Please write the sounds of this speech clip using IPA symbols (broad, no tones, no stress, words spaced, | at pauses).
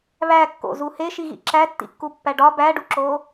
βækːo̰zu heʃiɣḭ ǁætːḭkːupːæ ɖɒ bæɖuǁo